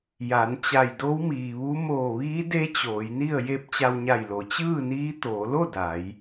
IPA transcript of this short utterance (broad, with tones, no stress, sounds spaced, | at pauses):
j a˩˧ n t͡ɕ a˧˩ j d o˧˥ w m iː˩ ʋ u˧˥ m oː˧˩ ʋ iː˧˥ d e˧˥ t͡ɕ oː˩˧ j n i˥˨ ə̯ j e˧ p̚ t͡ɕ a˧ w ɲ a˧˩ j l o˩ t͡ɕ ɯː˥˨ n iː˧˥ t̪ oː˩˧ l o˥˨ d a˩˧ j